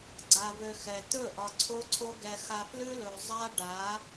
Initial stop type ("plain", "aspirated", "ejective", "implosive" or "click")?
click